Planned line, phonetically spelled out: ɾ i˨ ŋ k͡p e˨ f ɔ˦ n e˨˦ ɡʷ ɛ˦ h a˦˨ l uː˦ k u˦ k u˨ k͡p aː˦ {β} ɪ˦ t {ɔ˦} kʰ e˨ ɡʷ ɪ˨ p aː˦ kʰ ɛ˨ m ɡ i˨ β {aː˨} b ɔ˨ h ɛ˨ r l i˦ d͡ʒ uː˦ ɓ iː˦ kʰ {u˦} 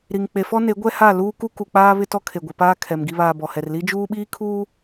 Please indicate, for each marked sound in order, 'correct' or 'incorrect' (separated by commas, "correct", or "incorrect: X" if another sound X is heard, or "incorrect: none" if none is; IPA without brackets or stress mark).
correct, correct, correct, incorrect: uː˦